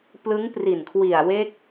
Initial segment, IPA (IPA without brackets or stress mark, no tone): p